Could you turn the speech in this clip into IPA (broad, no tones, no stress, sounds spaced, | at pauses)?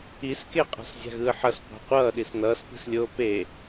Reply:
i s k e qʼ a̤ s zʲ a̤ ɣ ɯː ħ ʌ s qʷ a̤ qʷ ʌː ɗ i s n ʌː s p i̤ s lʲ oː p e